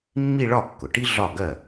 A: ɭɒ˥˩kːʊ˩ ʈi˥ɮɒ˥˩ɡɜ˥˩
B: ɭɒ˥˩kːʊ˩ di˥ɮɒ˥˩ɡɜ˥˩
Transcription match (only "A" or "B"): A